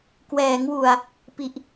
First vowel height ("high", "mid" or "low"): mid